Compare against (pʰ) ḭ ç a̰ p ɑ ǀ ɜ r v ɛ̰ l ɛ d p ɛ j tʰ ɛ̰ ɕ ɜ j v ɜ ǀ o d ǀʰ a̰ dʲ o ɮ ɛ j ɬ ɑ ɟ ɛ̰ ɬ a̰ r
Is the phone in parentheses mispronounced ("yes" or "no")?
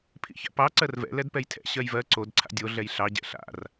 no